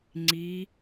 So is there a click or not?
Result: yes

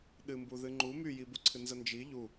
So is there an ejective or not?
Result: no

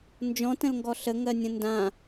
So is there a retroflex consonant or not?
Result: no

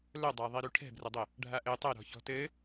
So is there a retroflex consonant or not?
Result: yes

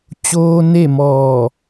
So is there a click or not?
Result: no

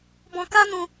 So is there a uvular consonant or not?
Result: no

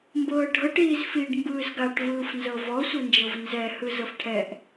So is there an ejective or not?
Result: no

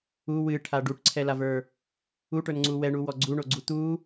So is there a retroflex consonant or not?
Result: yes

